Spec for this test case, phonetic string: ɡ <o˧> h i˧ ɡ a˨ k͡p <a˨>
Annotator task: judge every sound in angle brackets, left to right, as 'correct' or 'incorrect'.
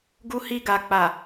incorrect: u˧, correct

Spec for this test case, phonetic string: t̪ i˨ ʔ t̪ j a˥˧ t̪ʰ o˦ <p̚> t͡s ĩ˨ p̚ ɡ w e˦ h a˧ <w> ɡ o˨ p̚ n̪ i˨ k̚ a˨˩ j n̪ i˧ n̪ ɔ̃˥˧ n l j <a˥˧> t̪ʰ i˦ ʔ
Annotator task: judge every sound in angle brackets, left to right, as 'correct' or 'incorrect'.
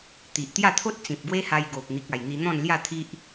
incorrect: t̚, incorrect: j, correct

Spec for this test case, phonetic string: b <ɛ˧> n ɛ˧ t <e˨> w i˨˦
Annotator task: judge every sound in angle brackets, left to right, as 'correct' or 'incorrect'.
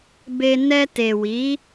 incorrect: e˧, correct

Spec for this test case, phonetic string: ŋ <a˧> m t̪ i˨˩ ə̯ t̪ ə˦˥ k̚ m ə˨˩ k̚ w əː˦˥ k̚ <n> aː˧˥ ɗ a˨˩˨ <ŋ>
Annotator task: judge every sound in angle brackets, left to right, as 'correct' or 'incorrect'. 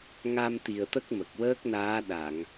correct, correct, correct

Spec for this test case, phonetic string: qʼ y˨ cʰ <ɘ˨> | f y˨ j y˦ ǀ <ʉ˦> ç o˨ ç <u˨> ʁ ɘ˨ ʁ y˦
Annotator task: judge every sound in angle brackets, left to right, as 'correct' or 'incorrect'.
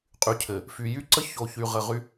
correct, incorrect: ə˦, incorrect: y˨

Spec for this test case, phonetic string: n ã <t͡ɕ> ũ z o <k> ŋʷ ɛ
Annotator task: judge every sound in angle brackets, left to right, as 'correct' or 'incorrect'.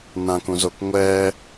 incorrect: k, correct

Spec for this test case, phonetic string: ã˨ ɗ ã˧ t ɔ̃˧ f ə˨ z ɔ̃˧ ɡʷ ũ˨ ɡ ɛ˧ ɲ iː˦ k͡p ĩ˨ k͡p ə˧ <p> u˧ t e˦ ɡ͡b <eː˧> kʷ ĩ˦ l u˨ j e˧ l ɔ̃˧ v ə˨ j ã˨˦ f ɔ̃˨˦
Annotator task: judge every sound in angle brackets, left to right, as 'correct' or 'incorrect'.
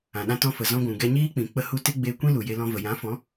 incorrect: h, correct

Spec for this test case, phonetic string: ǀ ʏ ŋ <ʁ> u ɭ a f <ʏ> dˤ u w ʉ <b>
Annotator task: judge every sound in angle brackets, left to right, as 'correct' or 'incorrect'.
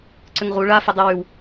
correct, incorrect: ə, incorrect: w

